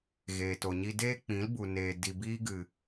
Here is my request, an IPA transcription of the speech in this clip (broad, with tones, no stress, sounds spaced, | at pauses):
ɣ eː˨ t o˨ ɲ i˧ d eː˦ k͡p ĩ˨˦ l b u˨ n eː˨ d i˨ b iː˧ ɡ ɨ˨